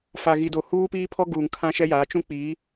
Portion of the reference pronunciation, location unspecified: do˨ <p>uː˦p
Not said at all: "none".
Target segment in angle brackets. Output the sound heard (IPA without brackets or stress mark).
h